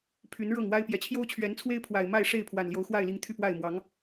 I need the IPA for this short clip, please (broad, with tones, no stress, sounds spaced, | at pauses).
pʰ y˨˦ n ɻ ɤ˥˨ ŋ w a˦ ɪ̯ p j ɛ˨˩ t͡ɕʰ j o˦ ʊ̯ t͡ɕʰ ɥ ɛ˨˦ n t͡sʰ w e˦ ɪ̯ pʰ w a˨˩ ɪ̯ m a˥˨ ɪ̯ ʂ e˥˨ ɪ̯ pʰ w a˨˩ n l j o˨˦ ʊ̯ x w a˥˨ ɪ̯ l i˨˦ ŋ t̪ʰ y˥˨ p w a˥˨ ɪ̯ m w ɑ˨˦ ŋ